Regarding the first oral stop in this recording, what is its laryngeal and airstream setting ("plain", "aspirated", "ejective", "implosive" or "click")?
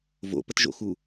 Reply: plain